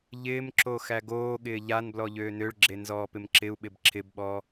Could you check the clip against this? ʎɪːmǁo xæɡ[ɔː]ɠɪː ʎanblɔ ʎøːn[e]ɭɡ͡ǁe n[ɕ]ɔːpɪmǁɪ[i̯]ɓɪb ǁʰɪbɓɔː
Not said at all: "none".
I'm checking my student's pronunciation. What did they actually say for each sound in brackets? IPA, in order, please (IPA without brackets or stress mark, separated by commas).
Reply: oː, ø, z, u̯